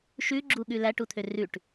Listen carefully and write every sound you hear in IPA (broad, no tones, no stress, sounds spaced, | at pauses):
ʃ ʉ ɡ͡ǁ u ɠ ʉ l æ ʈ u t̪ʰ ø r ʉ ʈ